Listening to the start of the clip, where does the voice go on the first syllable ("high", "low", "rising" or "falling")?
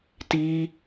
high